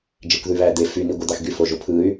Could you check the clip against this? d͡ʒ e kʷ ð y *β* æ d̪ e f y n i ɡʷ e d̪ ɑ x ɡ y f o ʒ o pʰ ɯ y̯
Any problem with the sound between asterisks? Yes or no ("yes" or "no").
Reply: no